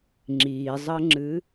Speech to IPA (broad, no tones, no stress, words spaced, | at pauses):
ŋ͡ǁizˤəŋ͡ǁɨ